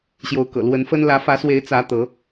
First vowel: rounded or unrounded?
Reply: rounded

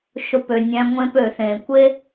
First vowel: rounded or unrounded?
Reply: rounded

